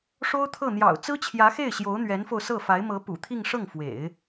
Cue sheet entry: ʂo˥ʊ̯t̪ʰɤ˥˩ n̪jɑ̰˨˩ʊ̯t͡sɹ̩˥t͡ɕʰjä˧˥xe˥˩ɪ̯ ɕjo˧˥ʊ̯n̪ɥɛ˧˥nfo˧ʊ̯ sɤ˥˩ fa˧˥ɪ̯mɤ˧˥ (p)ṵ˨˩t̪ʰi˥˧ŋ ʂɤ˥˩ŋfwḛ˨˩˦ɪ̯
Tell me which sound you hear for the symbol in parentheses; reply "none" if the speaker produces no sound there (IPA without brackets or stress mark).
p